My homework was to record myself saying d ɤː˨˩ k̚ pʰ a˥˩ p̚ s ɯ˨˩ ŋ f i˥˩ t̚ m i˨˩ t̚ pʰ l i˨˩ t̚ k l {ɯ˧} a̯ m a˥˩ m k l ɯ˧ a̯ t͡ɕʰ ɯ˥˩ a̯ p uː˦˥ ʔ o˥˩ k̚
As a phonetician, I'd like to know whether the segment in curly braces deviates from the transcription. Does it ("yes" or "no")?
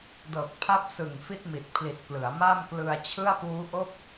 yes